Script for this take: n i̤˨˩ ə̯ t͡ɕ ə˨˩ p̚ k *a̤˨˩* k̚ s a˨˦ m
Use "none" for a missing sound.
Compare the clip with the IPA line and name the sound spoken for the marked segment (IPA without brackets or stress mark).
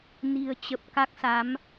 a˦˥